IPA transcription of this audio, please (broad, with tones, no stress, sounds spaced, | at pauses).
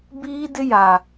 b iː˦ d ɪ˦ j a˨